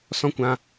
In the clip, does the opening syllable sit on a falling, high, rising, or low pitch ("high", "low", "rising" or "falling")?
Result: high